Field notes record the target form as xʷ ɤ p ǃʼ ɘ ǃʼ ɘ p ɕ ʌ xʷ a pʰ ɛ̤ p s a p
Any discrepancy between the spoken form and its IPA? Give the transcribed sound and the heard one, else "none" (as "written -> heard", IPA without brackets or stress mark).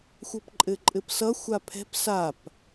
ɕ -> s